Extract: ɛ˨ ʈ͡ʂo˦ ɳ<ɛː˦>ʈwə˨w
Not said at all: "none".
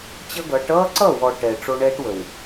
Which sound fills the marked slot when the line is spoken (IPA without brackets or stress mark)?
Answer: ɛː˦